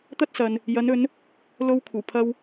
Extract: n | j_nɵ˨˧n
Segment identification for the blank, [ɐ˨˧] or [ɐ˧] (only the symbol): ɐ˨˧